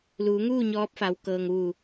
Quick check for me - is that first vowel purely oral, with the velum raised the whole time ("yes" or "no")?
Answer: yes